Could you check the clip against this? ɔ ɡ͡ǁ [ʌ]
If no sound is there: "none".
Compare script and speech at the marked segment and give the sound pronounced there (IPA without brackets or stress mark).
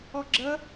ə